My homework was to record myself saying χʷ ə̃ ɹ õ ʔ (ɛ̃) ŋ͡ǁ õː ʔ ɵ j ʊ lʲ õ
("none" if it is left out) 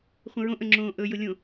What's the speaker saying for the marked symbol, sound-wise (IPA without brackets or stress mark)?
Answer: ə̃